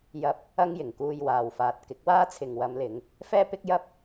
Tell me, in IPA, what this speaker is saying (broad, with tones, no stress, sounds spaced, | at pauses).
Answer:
j ɐ˧ p̚ | ɐ˥ ŋ j ɪ˨˩ ŋ k uː˧ j w aː˨ w f aː˨ t̚ k ɪ˨˥ k̚ w aː˥ t͡sʰ ɪ˨ ŋ w ɐ˨˧ m l ɪ˨˧ ŋ | f ɛː˥ p ɪ˥ k̚ j ɐ˥ p̚